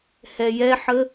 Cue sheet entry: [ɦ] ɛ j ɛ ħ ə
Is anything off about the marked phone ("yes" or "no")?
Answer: yes